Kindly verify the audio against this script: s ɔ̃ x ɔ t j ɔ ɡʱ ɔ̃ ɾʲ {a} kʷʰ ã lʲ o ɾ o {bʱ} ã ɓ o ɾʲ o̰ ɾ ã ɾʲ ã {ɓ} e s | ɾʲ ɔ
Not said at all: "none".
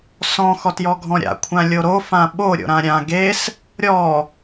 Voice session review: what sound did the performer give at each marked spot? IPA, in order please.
a̰, f, ɡ

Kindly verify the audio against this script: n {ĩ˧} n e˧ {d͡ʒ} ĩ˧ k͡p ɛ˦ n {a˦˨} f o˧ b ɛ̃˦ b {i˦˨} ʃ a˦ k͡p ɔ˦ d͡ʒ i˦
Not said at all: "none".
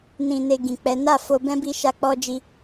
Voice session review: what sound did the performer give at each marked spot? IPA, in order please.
ĩ˧, ɡ, a˦˨, i˦

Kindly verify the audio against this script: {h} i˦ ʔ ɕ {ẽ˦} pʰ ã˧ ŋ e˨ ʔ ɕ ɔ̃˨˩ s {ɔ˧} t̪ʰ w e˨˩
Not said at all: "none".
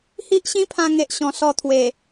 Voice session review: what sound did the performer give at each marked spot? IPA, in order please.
h, ĩ˦, ɔ˧

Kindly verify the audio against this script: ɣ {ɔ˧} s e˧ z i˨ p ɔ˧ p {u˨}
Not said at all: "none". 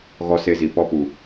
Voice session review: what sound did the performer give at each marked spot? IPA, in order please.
ɔ˧, u˨

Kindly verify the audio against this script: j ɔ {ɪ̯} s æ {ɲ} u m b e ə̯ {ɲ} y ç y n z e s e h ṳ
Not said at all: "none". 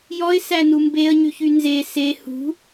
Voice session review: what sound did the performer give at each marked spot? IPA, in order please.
ɪ̯, n, ɲ

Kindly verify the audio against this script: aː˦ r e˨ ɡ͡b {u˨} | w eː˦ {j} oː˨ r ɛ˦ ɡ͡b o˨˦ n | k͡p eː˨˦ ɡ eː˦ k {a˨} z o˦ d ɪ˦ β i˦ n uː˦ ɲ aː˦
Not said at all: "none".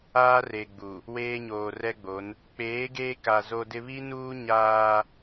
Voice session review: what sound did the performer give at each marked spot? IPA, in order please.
u˨, ɲ, a˨

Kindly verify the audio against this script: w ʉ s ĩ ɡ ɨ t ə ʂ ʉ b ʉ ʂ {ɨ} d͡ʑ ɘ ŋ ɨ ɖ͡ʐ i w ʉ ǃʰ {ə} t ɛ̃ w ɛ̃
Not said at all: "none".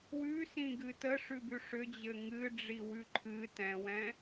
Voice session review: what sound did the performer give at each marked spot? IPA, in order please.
ʏ, ɨ

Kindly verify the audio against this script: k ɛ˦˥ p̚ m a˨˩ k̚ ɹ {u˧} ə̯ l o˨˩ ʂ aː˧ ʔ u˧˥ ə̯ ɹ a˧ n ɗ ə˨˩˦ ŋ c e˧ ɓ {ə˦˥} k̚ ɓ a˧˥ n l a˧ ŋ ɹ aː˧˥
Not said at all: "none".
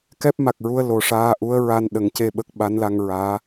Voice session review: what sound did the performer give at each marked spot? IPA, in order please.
u˧, ə˦˥

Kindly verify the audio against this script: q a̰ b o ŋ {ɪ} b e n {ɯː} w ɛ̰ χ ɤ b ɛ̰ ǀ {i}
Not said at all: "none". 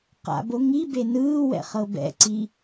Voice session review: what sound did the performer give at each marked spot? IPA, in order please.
i, ɯː, i

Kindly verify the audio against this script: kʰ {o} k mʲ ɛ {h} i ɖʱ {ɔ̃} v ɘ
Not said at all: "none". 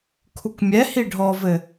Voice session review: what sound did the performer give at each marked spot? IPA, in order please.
u, h, ɔ

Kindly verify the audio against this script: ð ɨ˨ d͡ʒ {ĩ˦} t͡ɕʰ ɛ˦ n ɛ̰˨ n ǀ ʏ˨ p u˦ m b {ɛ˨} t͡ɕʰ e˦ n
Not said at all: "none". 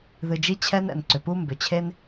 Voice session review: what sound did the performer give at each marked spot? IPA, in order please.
i˦, ʏ˨

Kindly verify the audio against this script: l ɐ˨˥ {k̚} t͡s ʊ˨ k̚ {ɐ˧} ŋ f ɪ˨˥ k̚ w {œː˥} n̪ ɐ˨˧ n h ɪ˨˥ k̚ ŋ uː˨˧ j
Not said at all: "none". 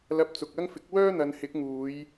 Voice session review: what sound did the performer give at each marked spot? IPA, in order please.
p̚, ɐ˥, œː˥

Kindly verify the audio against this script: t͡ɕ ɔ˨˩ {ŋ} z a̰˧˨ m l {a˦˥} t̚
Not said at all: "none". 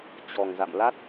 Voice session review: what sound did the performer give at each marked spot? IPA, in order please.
ŋ, a˦˥

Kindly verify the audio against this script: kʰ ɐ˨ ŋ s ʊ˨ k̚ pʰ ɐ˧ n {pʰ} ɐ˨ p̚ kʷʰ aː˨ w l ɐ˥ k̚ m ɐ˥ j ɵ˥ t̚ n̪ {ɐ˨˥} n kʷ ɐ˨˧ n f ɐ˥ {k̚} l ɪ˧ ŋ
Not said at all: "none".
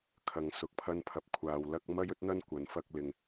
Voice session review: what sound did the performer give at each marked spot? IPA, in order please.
pʰ, ɐ˥, k̚

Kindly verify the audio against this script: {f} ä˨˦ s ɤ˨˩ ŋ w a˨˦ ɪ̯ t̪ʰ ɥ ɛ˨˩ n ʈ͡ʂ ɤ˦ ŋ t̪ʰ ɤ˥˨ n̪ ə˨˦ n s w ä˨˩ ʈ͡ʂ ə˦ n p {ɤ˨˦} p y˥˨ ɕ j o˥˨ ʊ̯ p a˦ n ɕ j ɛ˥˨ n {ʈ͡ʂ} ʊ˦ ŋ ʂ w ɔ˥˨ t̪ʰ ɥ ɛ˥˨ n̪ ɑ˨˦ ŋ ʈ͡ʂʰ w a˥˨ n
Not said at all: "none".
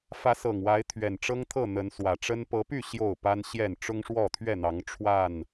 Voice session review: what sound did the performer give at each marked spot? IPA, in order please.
f, ɤ˨˦, ʈ͡ʂ

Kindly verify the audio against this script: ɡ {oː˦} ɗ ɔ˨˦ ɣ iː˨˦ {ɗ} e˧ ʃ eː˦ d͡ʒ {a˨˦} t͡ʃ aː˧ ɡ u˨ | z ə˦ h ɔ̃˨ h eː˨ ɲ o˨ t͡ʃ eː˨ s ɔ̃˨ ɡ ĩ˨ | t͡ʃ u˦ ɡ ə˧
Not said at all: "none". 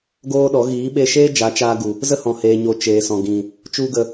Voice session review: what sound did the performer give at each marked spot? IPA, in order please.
oː˦, ɓ, a˨˦

